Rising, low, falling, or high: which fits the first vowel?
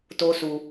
high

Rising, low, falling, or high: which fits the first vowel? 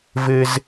high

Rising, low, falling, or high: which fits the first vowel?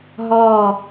falling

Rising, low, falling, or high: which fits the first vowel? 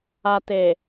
low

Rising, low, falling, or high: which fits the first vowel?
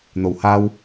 low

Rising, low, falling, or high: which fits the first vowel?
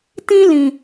high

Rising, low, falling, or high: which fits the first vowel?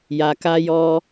low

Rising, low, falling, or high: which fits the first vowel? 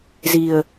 low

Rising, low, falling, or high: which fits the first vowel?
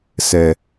low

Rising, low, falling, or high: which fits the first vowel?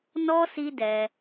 high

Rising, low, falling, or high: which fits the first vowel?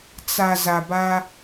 low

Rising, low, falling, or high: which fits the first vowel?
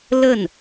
falling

